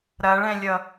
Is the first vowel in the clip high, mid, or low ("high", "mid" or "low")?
low